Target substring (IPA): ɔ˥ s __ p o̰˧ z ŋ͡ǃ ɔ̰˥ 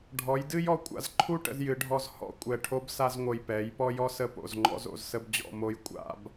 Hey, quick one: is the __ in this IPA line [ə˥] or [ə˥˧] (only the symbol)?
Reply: ə˥